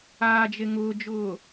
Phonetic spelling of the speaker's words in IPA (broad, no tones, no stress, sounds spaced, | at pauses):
aː d͡ʒ e ŋ ʊː d͡ʒ ʊː